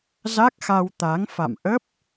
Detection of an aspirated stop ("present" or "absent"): absent